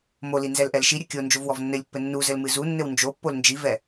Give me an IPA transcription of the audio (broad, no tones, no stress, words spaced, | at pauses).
moli nzɛlʔɛlʃiɾʲɘ kʲo nd͡ʒovwɔvnːɘlʲpːɘ nːuzɘl mɨzunːɘw nd͡ʒopːol nd͡ʒivɛ